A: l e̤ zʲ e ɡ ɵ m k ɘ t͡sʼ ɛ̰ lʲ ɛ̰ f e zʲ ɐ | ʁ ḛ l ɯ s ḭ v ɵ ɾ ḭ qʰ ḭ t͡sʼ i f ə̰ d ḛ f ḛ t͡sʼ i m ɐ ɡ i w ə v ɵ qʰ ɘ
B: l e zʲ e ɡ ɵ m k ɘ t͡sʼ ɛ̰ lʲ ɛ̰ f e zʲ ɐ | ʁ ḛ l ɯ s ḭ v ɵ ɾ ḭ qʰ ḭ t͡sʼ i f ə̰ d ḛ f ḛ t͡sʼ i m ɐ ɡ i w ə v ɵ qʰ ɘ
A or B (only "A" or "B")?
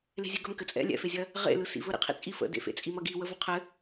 A